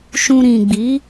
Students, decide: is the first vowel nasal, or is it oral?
nasal